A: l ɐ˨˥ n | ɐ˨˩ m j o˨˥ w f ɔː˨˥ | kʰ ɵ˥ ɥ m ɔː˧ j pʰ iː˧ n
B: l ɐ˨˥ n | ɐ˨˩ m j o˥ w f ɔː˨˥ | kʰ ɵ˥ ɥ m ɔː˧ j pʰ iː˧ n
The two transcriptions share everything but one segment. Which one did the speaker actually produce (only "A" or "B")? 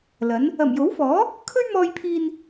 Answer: A